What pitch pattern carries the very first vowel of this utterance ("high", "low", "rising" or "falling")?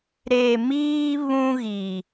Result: low